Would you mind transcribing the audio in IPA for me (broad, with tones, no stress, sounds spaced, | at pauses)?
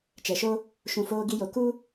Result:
t͡ʃ ɛ˨ ʃ o˦ | ʃ ũ˨ f oː˧ ɡ i˧ j o˨ k u˦